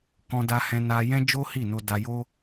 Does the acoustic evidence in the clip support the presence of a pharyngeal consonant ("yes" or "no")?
no